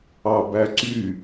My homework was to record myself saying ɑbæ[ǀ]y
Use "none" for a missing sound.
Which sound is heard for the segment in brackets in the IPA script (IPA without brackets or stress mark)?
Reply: ǀ